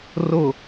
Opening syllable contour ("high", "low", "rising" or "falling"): low